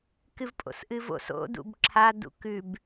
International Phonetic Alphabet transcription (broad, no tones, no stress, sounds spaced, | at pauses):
k ɨ v pʼ o̰ s ʔ ɨ v o̰ s o̰ d ṵ b ǁʰ a d ṵ k ʉ b